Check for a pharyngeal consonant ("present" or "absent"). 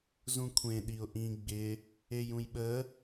absent